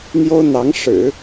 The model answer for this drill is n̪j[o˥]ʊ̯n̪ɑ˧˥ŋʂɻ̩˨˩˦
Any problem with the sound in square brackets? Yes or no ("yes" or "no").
no